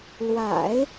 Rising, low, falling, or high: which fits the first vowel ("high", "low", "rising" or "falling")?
low